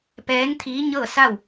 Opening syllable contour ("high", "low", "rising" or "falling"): rising